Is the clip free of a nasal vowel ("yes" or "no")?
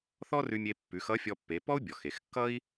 yes